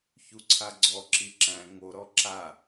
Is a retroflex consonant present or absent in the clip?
absent